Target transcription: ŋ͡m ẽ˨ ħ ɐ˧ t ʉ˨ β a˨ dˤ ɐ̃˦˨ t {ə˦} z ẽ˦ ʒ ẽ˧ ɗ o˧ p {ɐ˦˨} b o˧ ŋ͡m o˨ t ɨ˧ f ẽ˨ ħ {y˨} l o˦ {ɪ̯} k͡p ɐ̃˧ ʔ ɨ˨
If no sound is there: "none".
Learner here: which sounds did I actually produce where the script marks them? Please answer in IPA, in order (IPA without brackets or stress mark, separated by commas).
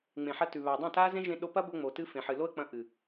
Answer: a˦, ɐ˦, ɨ˨, ə̯